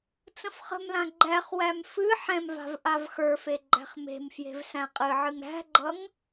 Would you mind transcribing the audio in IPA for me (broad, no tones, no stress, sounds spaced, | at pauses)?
t͡s ə̃ f χ ə̤ m l ã ɡ͡ǃ æ χ w æ m f ɨ ħ ɛ̃ m v a̤ v ʔ a v x ə˞ f e ɡ͡ǃ æ̤ χ m e̤ m f j e̤ v s æ̃ qʼ ɨ ʕ ɨ ŋ ɾ æ̤ ɡ͡ǃ ʌ ŋ